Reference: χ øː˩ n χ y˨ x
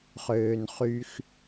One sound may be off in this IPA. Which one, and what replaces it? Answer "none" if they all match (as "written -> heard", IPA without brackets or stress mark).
none